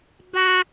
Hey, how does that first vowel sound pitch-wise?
high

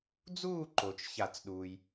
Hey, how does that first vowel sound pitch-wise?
falling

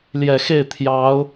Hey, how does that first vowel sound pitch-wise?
low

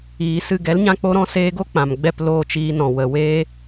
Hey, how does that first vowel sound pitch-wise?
low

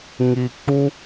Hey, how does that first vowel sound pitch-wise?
low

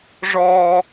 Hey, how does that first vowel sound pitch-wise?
high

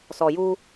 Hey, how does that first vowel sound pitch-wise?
low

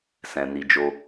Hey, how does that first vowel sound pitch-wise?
low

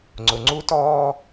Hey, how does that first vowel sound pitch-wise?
low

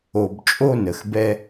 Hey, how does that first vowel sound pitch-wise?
low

